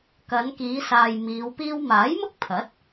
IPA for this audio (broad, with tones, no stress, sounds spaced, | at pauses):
k ɐ˨˧ n k iː˨˧ s aː˨ j m iː˨˧ w p iː˥ w m aː˨˥ j m ʊ˥ k̚ pʰ ɐ˨˥ t̚